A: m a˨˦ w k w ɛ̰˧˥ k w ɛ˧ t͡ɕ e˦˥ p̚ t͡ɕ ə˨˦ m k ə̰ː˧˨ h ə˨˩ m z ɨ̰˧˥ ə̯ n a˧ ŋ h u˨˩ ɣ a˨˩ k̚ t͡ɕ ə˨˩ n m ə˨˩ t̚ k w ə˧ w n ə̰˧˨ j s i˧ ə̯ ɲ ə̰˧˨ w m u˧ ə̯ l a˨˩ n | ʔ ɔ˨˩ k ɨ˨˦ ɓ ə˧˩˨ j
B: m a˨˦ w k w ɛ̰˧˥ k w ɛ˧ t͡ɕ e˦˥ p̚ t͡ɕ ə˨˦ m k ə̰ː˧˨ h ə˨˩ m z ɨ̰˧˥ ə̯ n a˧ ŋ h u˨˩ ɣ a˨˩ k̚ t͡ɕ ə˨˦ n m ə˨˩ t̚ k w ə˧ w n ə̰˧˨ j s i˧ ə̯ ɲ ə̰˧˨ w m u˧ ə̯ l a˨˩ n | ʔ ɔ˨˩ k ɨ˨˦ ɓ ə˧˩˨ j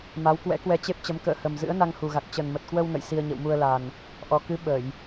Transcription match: A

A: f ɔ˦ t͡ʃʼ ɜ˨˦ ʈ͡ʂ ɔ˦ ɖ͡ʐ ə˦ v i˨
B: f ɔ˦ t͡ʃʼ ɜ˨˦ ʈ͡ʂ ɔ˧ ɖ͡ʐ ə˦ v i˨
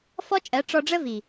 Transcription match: B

